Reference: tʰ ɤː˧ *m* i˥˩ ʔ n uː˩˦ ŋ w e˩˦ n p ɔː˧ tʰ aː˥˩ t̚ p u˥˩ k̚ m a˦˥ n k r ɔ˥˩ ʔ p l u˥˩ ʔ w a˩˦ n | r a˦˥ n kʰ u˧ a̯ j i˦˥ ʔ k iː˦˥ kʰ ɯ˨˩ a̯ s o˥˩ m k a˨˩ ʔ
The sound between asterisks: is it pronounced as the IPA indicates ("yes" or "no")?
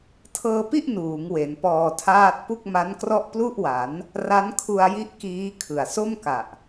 no